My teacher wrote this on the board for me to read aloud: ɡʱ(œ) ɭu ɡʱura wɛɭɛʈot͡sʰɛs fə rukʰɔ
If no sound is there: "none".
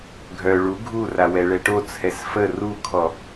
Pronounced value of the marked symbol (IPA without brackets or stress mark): œ